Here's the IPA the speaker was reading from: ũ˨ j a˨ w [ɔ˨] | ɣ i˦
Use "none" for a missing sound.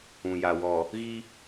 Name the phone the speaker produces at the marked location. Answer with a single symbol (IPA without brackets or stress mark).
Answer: ɔ˨